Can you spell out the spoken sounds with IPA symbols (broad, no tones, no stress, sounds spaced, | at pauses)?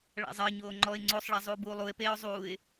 ɭ a̰ zˤ ɜ ɲ oː ŋ͡ǃ ɔ ɪ̯ ŋ͡ǀ o sˤ ɭ a zˤ uː b uː lˠ u ɪ̯ p eː ʊ̯ zˤ uː ɪ̯